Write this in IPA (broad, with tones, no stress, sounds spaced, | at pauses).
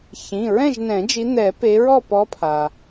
ç ĩ˩˧˩ ɹ ɛ̃˥˨ ʒ n ɛ̃˨˩˦ d͡ʒ i˨˦ n̪ ɛ˨˩˦ p e˨˦ ɹ ɔ˥˨ p ɔ˨˦ pʰ a˩